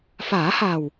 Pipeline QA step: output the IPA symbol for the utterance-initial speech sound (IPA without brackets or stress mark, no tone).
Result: f